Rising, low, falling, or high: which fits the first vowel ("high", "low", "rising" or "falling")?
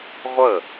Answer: falling